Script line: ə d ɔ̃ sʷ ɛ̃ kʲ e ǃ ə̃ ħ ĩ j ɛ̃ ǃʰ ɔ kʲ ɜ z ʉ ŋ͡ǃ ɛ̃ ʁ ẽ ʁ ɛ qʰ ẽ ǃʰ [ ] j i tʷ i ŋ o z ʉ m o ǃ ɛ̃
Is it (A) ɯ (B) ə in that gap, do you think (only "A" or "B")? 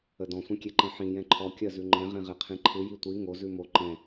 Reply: A